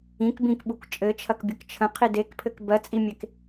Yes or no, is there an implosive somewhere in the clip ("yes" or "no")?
yes